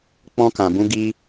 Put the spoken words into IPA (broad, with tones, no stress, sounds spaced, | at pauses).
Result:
k͡p ɔ̃˦ k ã˧ b ũ˦ ɡ i˦